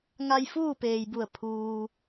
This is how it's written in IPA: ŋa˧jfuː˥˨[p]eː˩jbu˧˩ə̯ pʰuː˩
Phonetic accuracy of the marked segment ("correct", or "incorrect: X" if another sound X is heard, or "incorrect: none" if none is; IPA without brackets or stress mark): correct